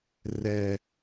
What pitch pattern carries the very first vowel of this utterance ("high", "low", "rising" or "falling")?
high